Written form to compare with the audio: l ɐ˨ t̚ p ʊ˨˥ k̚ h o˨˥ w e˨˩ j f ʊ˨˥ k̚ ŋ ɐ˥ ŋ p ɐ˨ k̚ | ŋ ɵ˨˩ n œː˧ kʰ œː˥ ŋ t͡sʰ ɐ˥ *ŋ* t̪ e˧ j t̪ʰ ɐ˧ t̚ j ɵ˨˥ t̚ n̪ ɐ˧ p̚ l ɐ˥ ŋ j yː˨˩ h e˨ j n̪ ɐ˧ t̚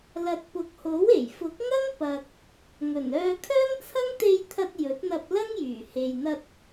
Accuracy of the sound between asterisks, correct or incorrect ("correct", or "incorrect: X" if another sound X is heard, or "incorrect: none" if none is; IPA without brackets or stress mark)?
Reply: correct